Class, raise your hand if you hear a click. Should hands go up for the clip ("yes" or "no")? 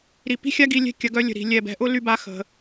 no